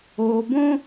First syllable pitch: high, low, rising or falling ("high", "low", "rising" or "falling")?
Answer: low